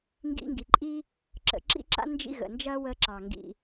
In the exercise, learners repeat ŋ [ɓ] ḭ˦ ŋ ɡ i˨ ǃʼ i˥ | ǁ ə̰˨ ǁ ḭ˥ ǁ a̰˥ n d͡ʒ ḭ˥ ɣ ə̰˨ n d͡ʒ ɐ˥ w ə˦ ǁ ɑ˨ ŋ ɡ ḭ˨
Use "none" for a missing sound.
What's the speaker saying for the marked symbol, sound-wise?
ɡ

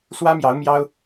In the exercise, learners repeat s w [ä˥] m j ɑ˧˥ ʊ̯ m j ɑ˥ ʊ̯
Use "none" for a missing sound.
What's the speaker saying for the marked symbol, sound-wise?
ä˥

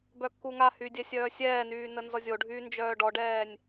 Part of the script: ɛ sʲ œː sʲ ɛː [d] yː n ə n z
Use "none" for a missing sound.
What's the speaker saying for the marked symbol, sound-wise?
n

